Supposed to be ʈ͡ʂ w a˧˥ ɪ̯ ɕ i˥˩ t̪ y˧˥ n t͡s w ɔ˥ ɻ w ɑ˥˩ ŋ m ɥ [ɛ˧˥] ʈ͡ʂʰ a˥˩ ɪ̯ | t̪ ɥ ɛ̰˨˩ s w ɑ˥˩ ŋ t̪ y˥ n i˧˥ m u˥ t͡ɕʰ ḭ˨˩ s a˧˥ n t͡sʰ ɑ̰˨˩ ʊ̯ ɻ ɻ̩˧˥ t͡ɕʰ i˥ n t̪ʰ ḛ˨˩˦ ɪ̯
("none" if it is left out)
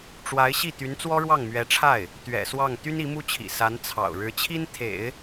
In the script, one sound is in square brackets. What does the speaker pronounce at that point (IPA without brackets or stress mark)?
ɛ˧˥